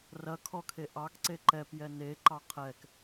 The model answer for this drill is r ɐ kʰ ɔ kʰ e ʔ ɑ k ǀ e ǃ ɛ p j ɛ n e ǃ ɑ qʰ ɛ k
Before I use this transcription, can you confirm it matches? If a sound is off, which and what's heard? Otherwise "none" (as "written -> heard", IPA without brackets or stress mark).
none